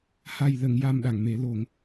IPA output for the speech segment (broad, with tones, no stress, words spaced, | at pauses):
ha˨˩jlə˨˩˨ŋja˨˩m ɗa˨˩˨ŋme˨˩˦lo˨˩˦ŋ